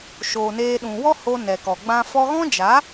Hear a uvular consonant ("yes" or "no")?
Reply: no